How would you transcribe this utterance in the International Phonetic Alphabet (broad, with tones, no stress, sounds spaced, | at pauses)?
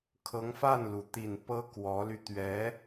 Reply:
kʰ ɤ˧˥ ŋ f a˥˩ n l u˩ t̪ i˨˩ n p ɤ˥ k w ɔ˧˥ l y˧ t̪ ɥ ɛ˧˥